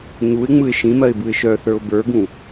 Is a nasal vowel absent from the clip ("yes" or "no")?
no